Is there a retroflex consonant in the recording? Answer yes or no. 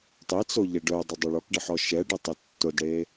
yes